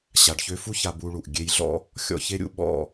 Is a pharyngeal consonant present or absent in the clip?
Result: absent